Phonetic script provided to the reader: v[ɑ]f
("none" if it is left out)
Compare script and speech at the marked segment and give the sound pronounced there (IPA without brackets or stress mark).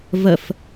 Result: ə